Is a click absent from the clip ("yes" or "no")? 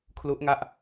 yes